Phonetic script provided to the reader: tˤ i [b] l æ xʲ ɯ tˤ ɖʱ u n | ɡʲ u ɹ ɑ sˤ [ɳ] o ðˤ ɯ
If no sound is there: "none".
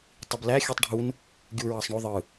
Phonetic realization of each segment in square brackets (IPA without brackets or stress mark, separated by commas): b, ɳ